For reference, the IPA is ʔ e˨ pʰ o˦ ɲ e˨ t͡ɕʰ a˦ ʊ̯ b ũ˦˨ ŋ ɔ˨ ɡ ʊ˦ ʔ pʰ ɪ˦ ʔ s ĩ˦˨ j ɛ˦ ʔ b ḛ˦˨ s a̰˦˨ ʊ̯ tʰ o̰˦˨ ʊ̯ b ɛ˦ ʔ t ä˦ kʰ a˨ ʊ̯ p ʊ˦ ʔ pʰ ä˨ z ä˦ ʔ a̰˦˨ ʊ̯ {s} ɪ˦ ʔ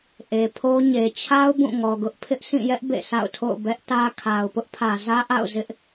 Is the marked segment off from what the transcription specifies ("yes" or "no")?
yes